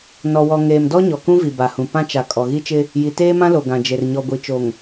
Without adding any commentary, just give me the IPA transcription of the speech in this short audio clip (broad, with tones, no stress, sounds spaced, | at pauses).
n ɔ˨ w ɔ˨ ŋ eː˨ m d ɔ˦ ɲ ɔ˨ k ũ˦ v i˨ b a˨ h ũ˨ p ã˦ t͡ʃ a˨ kʼ ɔ˨ ɣ i˦ t͡ʃ ɪ˦ | j i˨ t eː˦ m ã˦ l o˨ ɡ ã˨ d͡ʒ e˨ r ɲ ɔ˨ ɡʷ i˨ t͡ʃ o˨ ŋ